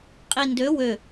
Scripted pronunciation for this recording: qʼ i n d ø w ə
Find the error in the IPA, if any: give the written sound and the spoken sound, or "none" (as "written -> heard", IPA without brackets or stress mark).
ə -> ø